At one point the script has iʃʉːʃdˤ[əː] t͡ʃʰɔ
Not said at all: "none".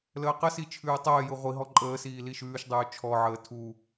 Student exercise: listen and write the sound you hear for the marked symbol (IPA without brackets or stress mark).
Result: ʉː